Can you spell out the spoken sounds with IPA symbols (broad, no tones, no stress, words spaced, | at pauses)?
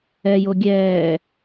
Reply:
ɛjo ɡʲɛː